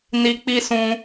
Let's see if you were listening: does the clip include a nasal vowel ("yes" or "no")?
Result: yes